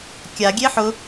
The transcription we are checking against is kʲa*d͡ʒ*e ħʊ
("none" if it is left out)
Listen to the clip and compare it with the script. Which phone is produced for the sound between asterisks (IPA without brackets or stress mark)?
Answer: ɡʲ